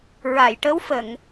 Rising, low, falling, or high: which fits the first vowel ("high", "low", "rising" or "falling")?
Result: low